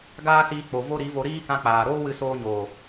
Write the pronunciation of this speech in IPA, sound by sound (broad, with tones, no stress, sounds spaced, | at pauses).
ɡ aː˦ s iː˧ k͡p o˨ v o˦ ɾ i˨˦ v o˧ ɾ iː˦ k ã˧ k͡p aː˨ ɾ oː˦ w ɨ˧ s oː˧ ɲ oː˨